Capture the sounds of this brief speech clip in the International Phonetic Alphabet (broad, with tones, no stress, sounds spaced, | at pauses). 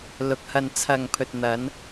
l ʊ˨ k̚ h ɐ˨ n t͡sʰ ɐ˨ ŋ pʰ ɵ˨ t̚ n̪ ɐ˨˧ n